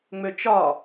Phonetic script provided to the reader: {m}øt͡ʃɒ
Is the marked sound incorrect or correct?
incorrect